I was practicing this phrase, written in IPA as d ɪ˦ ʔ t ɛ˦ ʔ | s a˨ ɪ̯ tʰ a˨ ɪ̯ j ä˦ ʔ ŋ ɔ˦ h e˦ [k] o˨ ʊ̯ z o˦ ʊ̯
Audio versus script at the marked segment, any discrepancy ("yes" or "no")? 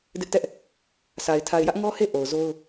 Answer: yes